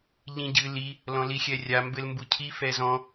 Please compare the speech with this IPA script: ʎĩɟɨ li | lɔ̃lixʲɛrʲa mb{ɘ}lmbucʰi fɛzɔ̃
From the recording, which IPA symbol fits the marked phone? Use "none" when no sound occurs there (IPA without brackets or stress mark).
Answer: ɘ